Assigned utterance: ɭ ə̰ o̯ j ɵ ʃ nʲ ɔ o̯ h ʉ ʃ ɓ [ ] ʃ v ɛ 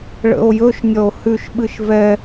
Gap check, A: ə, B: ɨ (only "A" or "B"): B